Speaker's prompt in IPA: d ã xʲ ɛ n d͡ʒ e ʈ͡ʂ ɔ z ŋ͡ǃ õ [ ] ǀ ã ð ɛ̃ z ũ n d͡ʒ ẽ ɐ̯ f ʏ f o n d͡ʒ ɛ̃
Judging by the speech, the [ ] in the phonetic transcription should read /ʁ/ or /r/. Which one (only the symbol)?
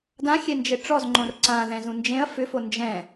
r